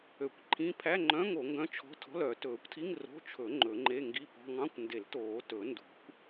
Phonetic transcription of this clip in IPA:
ø˨˩˦ kʷ ǃʰ ĩ˧˥˧ pʰ æ˧˥˧ ŋ͡ǃ œ̃˧˥˧ ŋ o˨˩˦ ŋ ɡ œ̃˧˥˧ t͡ʃʰ ɔ̤˧˥˧ tʰ ɔ̤˧˥˧ l œ˨˩˦ t ɵː˨˩˦ kʷ tʰ i˧˥˧ ŋ r o̤˧˥˧ t͡ʃʰ ɵ˨˩˦ ŋ͡ǃ ɵ˨˩˦ ŋ͡ǃ e˧˥˧ ŋ ɡ i˧˥˧ p ɔ̤˧˥˧ ŋ ɑ̃˧˥˧ kʷ n d e˨˩˦ l t oː˨˩˦ t ɵ˨˩˦ n d ṳ˨˩˦ kʷ

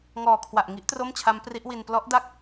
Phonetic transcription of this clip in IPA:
ŋ ɔː˨˩ kʰ w a˨˩ ʔ ŋ i˦˥ ʔ t r o˥˩ m t͡ɕʰ a˦˥ m p r i˦˥ ʔ w i˧ n p l ɔ˦˥ ʔ d a˥˩ k̚

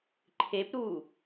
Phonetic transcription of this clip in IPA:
ǃʰ e p ɾ uː

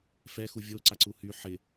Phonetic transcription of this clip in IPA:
f ɛ x u vʲ o ǀ a ǀ u h y ħ ɪ

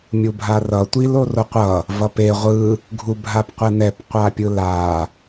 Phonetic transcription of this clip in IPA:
mʲ u bʱ a r ʌ tʷ i l o r o qʷ ʌ | v ʌ p e ʁʷ ɯ | ɡʱ u bʱ a p qʷ ɛ n ɛ p qʷ a pʲ ɯ l a

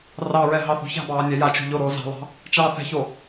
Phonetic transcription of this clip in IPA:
r ɑ ɹ ɛ ɦ ɑ θ ṳ ç a̤ b ɑː nʲ ɛ j a t͡ʃ ṳ ʎ o ɾ oː z ɑ̤ lˠ ɑ̤ | t͡ʃ ɑː θ ɛ̤ ç o

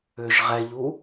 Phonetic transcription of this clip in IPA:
ʏ ʒ ʁ ɛ ʎ u

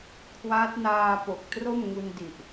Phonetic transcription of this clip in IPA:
kʰ w aː˦˥ t̚ n aː˧ p o˨˩ k̚ t r o˥˩ m ŋ u˧ n d i˨˩ ʔ

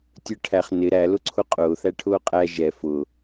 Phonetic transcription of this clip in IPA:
tʲ ə˞ ʈʰ æ χ n ɪ ɾ æ l ʊ ǀʰ ʊ qʼ ʊː θ æ ʈʰ ʊː qʼ æ ʒ ɛ f ʊ

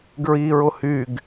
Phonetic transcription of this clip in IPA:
ɡ ɹ i ɹ ʊ h y ɡ

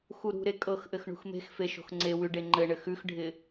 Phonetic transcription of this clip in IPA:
x u ɾ ṳ ɾ e kʼ ɤ x ʔ ɘ x ɳ ṳ x m e̤ x f e ʃ o̤ x ŋ͡ǀ e w ʉ ɖ e ŋ͡ǃ ɘ ɳ ɘ x ʉ x ɖʱ ɪ

